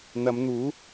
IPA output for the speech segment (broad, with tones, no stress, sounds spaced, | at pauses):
n̪ ɐ˨˧ m n̪ uː˨˥